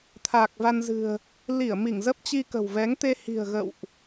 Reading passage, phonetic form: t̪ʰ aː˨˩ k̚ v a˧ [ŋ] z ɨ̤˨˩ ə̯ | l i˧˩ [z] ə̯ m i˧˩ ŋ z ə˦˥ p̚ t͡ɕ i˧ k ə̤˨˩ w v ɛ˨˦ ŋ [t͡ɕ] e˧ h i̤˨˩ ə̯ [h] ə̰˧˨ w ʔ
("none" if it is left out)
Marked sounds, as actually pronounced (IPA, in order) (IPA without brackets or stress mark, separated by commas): n, none, t̪, ɣ